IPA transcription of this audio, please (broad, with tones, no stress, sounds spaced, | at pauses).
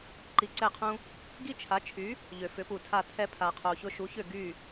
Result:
ǃ i˧ ǀ ɛ˥˩ qʰ ũ˥ | ɡ i˥ t͡ʃʰ a˩˥ t͡ʃʰ y˩˥ | ʎ ø˩ f ʏ˩˥ p u˩ tʰ a˥˩ t̪ʰ ɛ˧ pʰ a˩ qʰ o˩ ç ʊ˧ ʃ u˩˥ ç ʏ˥˩ ɡ y˥˩